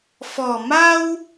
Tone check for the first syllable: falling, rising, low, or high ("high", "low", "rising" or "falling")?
low